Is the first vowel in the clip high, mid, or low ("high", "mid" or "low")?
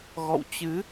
mid